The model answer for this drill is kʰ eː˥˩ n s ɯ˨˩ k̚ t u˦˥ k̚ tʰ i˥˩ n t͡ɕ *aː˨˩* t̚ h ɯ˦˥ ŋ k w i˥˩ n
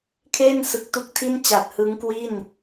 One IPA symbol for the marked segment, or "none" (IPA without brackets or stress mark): a˨˩